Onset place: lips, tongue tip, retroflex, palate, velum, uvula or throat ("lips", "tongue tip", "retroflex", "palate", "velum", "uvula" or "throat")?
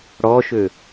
retroflex